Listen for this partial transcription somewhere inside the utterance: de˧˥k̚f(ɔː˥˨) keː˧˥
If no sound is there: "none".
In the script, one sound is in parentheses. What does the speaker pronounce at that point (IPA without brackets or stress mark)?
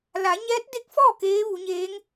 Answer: ɔː˥˨